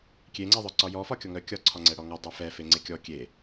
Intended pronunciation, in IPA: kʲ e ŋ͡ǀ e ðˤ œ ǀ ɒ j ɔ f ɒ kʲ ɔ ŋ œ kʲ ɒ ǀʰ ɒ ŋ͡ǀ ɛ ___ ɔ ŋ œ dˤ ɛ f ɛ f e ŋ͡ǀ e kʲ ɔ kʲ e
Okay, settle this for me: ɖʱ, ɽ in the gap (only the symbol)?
ɽ